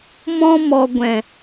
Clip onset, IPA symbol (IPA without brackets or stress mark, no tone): m